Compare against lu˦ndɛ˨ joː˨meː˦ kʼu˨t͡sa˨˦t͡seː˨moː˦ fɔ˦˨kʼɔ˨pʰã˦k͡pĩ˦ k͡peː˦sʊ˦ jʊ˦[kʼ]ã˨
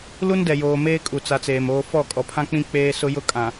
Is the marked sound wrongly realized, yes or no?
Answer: no